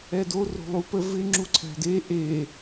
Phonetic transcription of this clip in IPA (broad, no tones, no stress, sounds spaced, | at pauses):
ɛ d o r o̤ lˠ u p ə v ɪ ŋ͡ǁ u ǀʰ æ̤ d e ʔ e